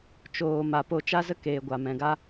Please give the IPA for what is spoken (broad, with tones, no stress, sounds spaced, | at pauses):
t͡ʃ oː˨ m a˨ p o˦˨ t͡ʃ a˦ z ə˦ k eː˨ ɡʷ a˨ m ɛ̃˨ ɡ a˦